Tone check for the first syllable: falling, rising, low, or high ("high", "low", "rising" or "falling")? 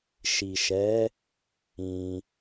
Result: low